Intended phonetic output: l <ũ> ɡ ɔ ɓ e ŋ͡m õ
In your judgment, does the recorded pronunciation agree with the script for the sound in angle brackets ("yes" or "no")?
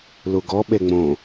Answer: no